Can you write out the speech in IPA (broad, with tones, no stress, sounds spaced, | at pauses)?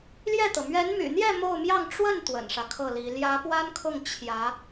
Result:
l j ɛ˥˩ t̪ ɤ˩ m ɥ ɛ˧˥ n m y̰˨˩ n̪ j ɛ˥˧ m o˥˧ ʊ̯ m j ɑ˥˧ ŋ ʈ͡ʂ w ə˥˩ n t̪ w ə̰˨˩ n ʂ ä˦ kʰ ɤ˥˩ l i˧˥ l j ä˧˥ p w a˥ n kʰ ʊ˥˩ ŋ t͡ɕʰ j ä˧˥